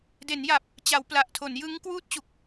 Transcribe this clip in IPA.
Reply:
d e˩˦ n j a˨˩ p̚ | t͡ɕ a˩˦ w p l a˨˩ ʔ tʰ o˩˦ n j ɯ˦˥ ŋ k w uː˦˥ t̚ t͡ɕ u˨˩ k̚

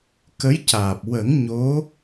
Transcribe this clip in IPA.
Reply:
k ə˧˥ j c aː˨˩ p̚ w ə˨˩˦ ŋ ɲ o˧˥

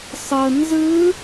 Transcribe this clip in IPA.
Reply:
sˤ ɤ n z ɯ

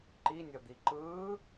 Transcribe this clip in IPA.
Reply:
ǃ i nʲ ʌ d̪ i ǃ ɯː

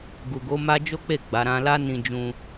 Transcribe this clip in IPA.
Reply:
ɡ u˨ ɡ o˨˦ m a˦ d͡ʒ o˦ k͡p e˦˨ ɡ͡b a˨˦ ɾ ã˧ l a˦ n ĩ˧ d͡ʒ ũ˧

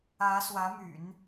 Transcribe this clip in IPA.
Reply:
ä˧˥ s w ä˧˥ m y̰˨˩˦ n

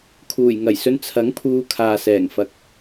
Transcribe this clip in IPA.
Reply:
kʰ uː˨˩ j ŋ ɐ˨˩ j s ɵ˧ n t͡sʰ ɐ˨˥ ŋ pʰ uː˨˧ kʰ aː˨ s ɛː˨˩ ŋ f ɐ˨ k̚

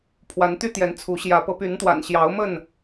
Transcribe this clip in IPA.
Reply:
pʰ w a˨˦ n t̪ y˦ t̪ j ɛ˨˦ n t͡sʰ u˨˦ ɕ j ä˨˦ p ɤ˨˦ p y˨˦ n t̪ w a̰˨˩ n ɕ j ɑ˨˦ ʊ̯ m ə˥˨ n

